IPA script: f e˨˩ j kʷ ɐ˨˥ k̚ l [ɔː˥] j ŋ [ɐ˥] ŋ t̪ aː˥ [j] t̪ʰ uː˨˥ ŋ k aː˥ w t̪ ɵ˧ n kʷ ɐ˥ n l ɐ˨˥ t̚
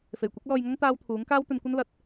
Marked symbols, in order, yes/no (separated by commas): no, yes, no